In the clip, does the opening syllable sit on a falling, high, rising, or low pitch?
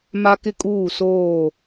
high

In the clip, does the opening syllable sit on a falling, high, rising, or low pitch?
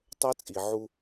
high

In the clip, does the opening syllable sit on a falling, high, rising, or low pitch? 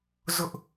high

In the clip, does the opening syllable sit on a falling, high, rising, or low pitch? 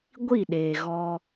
falling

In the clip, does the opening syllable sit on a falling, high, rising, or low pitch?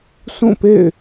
falling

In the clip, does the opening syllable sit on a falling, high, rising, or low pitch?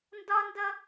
high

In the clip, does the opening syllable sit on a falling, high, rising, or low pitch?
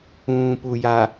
low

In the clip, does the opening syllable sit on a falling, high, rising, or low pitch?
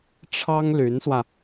high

